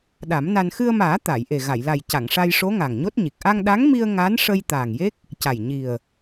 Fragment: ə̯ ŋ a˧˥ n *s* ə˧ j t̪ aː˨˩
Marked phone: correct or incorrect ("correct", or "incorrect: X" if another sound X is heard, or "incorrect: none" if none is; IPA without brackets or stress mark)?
incorrect: ʂ